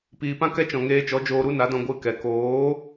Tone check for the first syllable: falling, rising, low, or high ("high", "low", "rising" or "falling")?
low